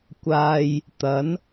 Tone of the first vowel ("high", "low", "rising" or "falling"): low